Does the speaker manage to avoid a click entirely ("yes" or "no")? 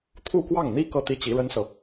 yes